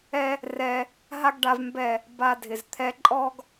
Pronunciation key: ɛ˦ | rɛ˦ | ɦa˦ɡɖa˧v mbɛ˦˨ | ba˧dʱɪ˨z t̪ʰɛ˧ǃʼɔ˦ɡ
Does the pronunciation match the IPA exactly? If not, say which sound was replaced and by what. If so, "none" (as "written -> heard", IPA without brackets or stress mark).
none